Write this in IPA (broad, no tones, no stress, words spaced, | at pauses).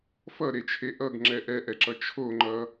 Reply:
fʌɾet͡ʃʰe ʔʌɡŋ͡ǁɛ ʔɛʔɛǁʌ t͡ʃʰoŋ͡ǃʌ